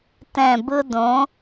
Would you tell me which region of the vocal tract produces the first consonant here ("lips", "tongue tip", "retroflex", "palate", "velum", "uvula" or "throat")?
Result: tongue tip